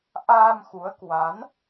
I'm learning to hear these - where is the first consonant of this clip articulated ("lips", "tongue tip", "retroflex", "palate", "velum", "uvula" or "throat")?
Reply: throat